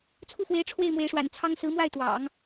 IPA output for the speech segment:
t͡sʰ u˥˩ f w e˧˥ ɪ̯ ʈ͡ʂʰ w e˥˩ ɪ̯ m w e˧˥ ɪ̯ ʂ w a̰˨˩ n t͡sʰ ɑ˥ ŋ s ɹ̩˧˥ m w a˥˩ ɪ̯ t̪ w ɑ̰˨˩˦ ŋ

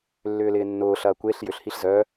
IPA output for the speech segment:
lː ʏː l ɪː nː ʊː ɬ ɐː kʷ e ɬ j ʏ ɬ h i ɬ z œ

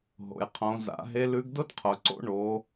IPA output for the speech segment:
ɦ o̰˩ j qʰ õ˩˧ z a̰˩˧ ɦ e˧˥ l ʉ˧˥ ɡ d ʊ˥ d qʰ ʊ˩ ǀ o̰˥ ɳ o˩˧

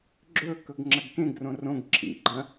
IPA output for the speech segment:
ɡ͡ǁ ɵ k ɵ ɡ ŋ͡ǁ ɐ ɡ k ẽ ɡ r õ r õ ɡ ǁʰ ḭ ɡ͡ǃ ɐ̃

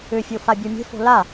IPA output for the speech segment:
ʏ fʲ o f a bʲ ɤ mʲ e̤ f o̤ l a

